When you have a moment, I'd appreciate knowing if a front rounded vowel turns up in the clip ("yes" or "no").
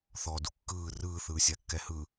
no